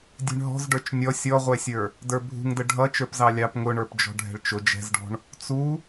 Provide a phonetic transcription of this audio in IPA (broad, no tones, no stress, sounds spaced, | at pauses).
dʲ ɛ̤ ɳ ɦ ɔ̤ z ɖ ə˞ t͡ʃ nʲ ɔ sʲ ɔ ʁʷ ɛ sʲ ə˞ | d ə˞ bʱ ṳ ŋ d ə ɖʱ ʌ t͡ʃ ə˞ p z ɑ lʲ ɑ p ŋ ʊ ɳ ə˞ p d͡ʒ ɔ̤ ɖʱ ɛ̤ ɭ t͡ʃ ʊ d͡ʒ ɛ̤ z ɖ ɔ̤ ɳ | t͡s u